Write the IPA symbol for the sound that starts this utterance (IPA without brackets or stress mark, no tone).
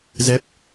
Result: z